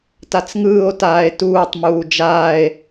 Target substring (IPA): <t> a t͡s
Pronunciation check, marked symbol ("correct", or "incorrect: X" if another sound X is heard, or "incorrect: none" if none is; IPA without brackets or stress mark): correct